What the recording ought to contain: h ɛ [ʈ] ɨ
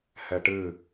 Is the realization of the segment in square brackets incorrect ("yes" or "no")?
no